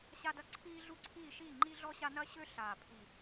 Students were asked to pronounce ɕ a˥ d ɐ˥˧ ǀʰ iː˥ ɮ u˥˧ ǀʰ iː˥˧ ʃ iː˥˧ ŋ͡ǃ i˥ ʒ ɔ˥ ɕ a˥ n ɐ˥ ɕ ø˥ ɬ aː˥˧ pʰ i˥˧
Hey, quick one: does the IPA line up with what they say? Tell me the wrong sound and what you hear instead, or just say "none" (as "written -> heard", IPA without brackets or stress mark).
ʒ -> ɮ